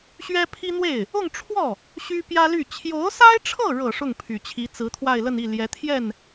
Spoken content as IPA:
ɕ ɥ ɛ˥ pʰ i˥ n̪ w e˥˩ ɪ̯ | ʊ˥˧ ŋ ʈ͡ʂʰ w ɔ˥˩ | ɕ y˥ p j ä˥ l y˥˩ t͡ɕʰ j o˧˥ ʊ̯ s a˥ ɪ̯ ʈ͡ʂʰ ɤ˥˩ ɻ ɤ˨˩ ʂ ʊ˥˩ ŋ pʰ y˨˩ t͡ɕʰ i˧˥ t͡s ɹ̩˧˥ t̪ʰ w a˥˧ ɪ̯ l ə˥˧ n i˥˩ l j ɛ˧˥ t̪ʰ j ɛ˥˩ n

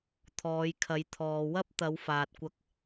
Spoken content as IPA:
t̪ʰ ɔː˨˧ j kʰ ɐ˨˧ j t̪ʰ ɔː˨ w ɐ˥ p̚ t̪ ɐ˨˧ w f aː˨ t̚ kʷ ɐ˧ k̚

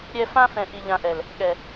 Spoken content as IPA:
ɾʲ ɛ˦ f ã˦ f ɛ̃˨ ʔ i˨ ʎ ã˨ ʔ ɛ˨ l | ɠ ɛ˨

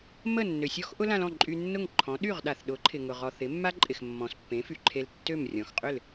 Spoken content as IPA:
m ə˥˩ nː ø˩ sʲ ɔ˥ x ʔ ʊ˥ l ã˧ l ɔ̃˥˩ ǃʼ y˧ nː ʊ˥˩ ŋ ǃʰ ɔ̃˩˥ ɗ y˥˩ ʁ ɗ a˩ θ ɗ ʊ˩˥ ǃʰ ɪ˩ ŋ ʊ˩ ʁ ɔ˩ θ ɪ˩˥ mː a˥ ǃʼ ɪ˩ x mː ɔ̃˩ s pː ẽ˩˥ f y˩ ǃʰ e˧ l tː ø˥˩ m rʲ ɔ̃˩ x qʼ ʏ˥˩ l

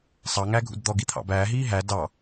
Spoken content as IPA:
sˤ ɑ ŋ æ ɡʱ ṵ d d̪ ɔ ɡ i t̪ʰ ɑ̰ b æː ɦ iː ɦ æ d ɑ

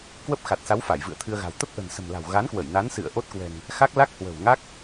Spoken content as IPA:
k w ə˦˥ p̚ x a˨˩ t̚ s a˨˦ w f a˧˩ j v ɨ̰˧˨ ə̯ t̪ʰ ɨ˧ ə̯ ɣ a̤˨˩ w t̪ ə˦˥ p̚ ʔ ə̤˨˩ n s ə̤˨˩ m l a̤˨˩ w ɣ a˨˦ n k w ə˧˩ j n a˨˦ n s ɨ̰˧˨ ə̯ ʔ o˦˥ t̚ k w ɛ̤˨˩ ŋ | x a˦˥ k̚ l a˦˥ k̚ h w ə̤˨˩ w ŋ a˦˥ k̚

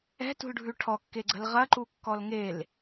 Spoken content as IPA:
ɛ̤ t ṳ l ɖʱ ʉ ʈʰ ɔ kː e ɡ͡ǀ ə̤ l ʁ ɐ ǃ u kː ɔ l ŋ e l

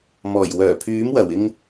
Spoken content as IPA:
m ɔː˨˩ j w œː˨˩ pʰ yː˨˥ m w ɐ˨˩ w ɪ˧ ŋ

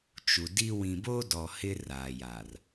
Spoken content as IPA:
t͡ʃ u˨ d i˦ w ĩ˨ b o˦ d ɔ˨ h ɪ˦ r aː˨ j a˨ r

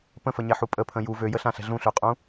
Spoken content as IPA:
p ə̃ f ə ɲ ɛ ħ u pʼ ə pʰ ə̃ j u v ø j ə ɬ ã ɬ ɛ̤ ɮ ũ ɬ ø qʼ ũ

